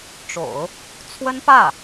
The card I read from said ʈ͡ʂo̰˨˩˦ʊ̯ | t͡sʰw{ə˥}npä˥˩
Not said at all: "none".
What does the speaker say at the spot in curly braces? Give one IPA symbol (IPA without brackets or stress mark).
ə˥